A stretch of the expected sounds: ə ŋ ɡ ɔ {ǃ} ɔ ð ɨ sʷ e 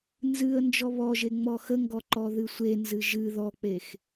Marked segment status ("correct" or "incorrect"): correct